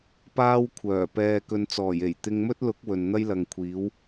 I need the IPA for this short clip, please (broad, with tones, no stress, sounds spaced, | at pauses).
p aː˥ w kʷʰ œː˨˩ p ɛː˧ k ɵ˧ n t͡s ɔː˨˩ j e˨˩ j t̪ ɪ˧ ŋ m ɵ˥ t̚ l ʊ˨˥ k̚ w ɵ˨ n n̪ ɐ˥ j l ɐ˨ ŋ kʷʰ iː˨˥ w